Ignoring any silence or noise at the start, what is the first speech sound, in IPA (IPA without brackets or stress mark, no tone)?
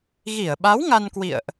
ɣ